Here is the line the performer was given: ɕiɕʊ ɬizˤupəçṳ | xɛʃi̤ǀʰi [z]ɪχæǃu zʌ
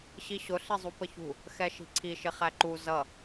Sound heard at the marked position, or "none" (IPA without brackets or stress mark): ʃ